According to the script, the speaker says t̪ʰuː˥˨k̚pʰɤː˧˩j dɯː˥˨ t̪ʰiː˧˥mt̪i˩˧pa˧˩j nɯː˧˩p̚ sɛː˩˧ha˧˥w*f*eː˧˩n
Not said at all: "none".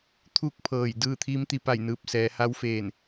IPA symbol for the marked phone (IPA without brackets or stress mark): f